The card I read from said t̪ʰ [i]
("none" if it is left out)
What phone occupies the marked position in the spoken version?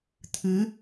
ɨ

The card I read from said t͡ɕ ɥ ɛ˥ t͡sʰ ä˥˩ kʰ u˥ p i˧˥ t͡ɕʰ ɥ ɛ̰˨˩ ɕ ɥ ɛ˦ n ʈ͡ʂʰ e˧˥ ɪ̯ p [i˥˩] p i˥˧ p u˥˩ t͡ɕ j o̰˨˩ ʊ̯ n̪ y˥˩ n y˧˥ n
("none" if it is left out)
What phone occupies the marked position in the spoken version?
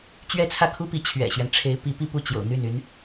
i˧˥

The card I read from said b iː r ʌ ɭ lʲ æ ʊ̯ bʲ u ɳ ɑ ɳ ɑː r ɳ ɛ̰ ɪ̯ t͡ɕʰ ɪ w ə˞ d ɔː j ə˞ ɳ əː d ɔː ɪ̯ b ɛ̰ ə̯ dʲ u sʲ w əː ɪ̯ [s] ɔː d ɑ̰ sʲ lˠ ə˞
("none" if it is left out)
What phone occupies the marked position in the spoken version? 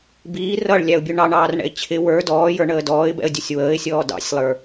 sʲ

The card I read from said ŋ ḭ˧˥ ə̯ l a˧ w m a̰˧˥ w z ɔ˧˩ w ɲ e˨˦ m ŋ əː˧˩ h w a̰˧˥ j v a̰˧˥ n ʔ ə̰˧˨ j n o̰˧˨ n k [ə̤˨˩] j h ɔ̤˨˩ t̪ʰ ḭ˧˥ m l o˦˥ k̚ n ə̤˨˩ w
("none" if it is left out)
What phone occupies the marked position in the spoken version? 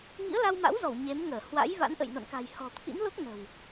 a̤˨˩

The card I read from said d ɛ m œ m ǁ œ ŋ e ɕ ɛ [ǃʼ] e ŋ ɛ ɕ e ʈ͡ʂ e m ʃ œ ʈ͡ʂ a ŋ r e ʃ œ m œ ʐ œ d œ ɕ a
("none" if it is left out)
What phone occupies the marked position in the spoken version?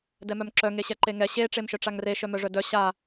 ǃ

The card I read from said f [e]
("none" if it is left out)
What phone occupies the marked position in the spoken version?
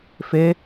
e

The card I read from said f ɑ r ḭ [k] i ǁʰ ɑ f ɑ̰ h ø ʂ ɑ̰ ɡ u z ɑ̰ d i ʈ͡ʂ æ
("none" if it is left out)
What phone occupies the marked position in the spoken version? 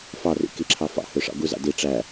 k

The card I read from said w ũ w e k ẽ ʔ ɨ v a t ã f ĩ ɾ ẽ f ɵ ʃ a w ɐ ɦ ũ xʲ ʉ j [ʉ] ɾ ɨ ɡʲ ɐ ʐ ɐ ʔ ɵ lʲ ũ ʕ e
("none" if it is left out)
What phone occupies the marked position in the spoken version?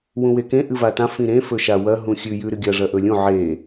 ʉ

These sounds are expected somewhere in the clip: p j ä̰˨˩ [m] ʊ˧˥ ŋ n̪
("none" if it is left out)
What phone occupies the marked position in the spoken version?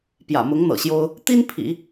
m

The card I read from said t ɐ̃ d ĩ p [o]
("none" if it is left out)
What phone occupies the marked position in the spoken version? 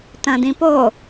o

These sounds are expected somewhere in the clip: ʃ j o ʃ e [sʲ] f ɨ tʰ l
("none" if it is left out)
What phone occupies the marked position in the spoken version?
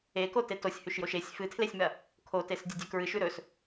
sʲ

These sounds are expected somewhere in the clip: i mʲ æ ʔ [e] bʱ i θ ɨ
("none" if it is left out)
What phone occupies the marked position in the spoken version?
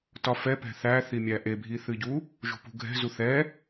e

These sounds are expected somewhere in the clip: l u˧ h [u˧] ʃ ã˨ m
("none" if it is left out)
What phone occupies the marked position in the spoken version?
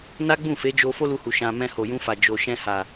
u˨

